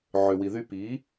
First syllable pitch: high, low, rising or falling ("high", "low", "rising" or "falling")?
low